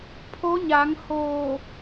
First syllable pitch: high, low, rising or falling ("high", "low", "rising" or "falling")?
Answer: rising